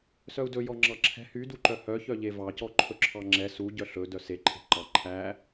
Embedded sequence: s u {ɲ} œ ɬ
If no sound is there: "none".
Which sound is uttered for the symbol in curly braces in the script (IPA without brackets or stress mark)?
ɟ